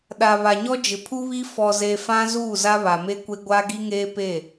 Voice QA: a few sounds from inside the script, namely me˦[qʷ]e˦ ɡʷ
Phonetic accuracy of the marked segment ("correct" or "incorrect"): incorrect